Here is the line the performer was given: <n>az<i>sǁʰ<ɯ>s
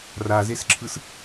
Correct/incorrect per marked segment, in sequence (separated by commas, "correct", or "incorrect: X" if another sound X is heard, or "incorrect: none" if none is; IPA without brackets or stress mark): incorrect: r, incorrect: e, correct